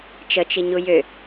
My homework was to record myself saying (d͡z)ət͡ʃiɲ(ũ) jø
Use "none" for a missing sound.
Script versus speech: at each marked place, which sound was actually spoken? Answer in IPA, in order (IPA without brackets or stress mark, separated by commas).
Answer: t͡ʃ, u